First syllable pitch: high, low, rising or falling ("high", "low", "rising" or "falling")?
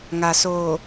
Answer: low